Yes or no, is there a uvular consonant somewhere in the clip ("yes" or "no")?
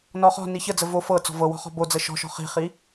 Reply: yes